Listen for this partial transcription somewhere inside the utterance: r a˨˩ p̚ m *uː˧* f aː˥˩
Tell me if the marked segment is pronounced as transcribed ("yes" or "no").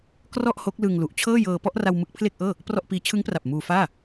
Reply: yes